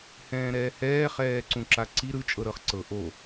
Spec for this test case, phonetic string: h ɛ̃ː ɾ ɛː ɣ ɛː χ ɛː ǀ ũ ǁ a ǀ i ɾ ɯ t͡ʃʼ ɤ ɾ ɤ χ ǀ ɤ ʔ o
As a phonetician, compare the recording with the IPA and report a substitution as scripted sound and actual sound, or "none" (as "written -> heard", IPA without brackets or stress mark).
ɣ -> h